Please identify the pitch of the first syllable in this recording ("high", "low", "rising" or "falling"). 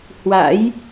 rising